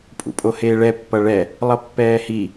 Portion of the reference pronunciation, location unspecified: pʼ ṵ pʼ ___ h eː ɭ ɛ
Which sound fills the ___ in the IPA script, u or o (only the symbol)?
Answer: o